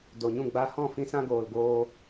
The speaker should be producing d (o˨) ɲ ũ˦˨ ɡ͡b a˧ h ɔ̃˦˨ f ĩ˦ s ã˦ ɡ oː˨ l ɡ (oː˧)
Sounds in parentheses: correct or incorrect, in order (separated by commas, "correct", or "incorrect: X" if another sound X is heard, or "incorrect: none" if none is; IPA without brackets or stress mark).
correct, correct